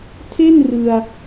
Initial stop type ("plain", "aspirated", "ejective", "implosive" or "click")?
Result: aspirated